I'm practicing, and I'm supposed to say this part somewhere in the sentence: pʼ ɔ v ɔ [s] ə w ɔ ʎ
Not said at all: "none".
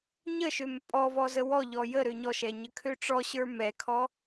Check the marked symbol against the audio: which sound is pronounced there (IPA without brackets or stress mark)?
z